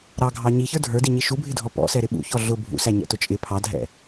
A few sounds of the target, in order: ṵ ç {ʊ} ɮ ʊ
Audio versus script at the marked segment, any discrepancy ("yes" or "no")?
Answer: yes